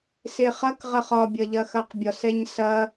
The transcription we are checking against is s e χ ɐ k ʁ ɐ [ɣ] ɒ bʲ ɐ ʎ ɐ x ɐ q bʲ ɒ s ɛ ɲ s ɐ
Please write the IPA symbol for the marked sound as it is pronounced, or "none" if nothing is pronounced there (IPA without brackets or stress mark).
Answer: χ